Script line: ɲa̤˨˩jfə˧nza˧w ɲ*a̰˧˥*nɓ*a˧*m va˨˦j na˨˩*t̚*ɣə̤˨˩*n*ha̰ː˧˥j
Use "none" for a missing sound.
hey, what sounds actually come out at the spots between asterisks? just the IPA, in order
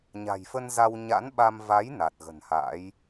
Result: a̰˧˥, a˧, t̚, n

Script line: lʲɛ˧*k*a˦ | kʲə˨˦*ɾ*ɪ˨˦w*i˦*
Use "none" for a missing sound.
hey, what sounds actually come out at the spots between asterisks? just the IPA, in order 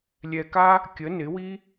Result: k, n, i˦

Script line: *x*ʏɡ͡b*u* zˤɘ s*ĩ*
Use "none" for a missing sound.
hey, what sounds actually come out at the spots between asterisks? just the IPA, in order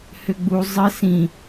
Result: h, u, ĩ

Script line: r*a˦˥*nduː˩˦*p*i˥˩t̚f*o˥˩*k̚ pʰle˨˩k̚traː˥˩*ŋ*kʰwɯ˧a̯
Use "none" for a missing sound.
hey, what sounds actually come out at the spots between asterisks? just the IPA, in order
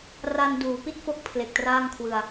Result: a˧, p, o˦˥, ŋ

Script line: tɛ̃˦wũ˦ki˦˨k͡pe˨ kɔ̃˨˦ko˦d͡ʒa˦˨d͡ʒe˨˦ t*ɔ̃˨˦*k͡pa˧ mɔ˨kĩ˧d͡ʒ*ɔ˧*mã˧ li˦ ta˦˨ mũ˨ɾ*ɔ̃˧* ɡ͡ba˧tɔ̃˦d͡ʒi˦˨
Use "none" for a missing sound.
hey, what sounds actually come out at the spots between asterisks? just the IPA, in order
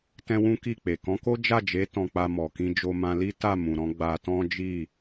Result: ɔ̃˧, o˧, ɔ̃˧

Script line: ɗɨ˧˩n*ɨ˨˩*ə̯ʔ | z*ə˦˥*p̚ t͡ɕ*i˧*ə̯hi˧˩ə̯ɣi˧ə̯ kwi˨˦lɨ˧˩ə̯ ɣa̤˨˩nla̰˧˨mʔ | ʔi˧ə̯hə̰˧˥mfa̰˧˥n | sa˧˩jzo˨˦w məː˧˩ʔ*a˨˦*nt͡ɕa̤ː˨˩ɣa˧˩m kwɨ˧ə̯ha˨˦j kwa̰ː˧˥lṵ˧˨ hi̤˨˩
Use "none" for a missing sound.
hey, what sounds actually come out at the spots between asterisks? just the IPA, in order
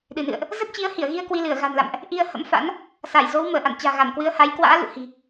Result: ɨ̰˧˨, ə˦˥, i˨˦, a̰˧˨

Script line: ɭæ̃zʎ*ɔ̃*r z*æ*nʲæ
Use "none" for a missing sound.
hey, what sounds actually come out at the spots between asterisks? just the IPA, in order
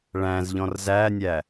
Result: ɔ̃, æ

